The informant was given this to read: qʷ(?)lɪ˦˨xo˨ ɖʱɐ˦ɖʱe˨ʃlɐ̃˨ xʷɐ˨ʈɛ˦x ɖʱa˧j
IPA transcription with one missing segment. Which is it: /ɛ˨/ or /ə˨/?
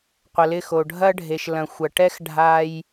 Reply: ə˨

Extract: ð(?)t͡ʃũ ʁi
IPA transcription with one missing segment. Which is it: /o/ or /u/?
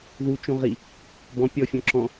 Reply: u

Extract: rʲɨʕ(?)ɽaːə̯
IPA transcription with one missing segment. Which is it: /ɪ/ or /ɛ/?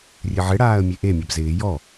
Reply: ɪ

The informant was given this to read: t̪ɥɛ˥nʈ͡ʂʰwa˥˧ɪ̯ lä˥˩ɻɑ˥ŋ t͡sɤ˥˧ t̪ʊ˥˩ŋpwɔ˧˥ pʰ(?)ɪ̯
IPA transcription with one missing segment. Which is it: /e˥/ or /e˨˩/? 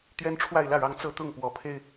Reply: e˥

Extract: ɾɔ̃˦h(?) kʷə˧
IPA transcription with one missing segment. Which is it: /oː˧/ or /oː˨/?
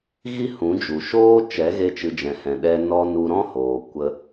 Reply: oː˨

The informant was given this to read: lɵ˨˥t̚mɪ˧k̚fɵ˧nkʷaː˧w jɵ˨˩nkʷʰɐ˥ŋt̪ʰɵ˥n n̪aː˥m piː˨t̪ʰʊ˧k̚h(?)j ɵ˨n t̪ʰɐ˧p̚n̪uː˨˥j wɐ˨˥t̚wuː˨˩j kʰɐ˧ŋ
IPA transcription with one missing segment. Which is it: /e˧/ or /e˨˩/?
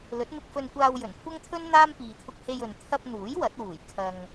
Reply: e˧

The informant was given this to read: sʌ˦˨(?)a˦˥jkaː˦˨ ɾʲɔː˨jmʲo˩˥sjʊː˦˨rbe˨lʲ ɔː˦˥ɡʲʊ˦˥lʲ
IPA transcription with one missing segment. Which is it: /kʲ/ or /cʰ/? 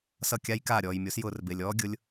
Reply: kʲ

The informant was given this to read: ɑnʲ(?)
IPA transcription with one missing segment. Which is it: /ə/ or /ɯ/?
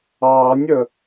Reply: ə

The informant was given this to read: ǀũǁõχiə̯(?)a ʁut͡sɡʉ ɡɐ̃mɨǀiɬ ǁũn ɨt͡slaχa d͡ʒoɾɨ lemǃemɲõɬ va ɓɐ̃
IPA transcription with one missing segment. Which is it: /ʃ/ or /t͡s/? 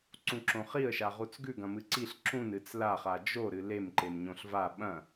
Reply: ʃ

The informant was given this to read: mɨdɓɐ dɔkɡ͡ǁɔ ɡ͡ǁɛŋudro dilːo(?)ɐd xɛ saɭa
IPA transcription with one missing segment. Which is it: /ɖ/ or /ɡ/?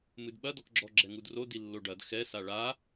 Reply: ɖ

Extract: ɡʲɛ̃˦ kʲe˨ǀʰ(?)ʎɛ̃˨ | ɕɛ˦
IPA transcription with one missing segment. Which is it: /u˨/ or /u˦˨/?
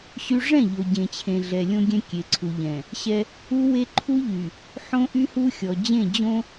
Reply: u˨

